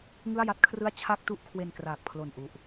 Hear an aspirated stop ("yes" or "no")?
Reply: yes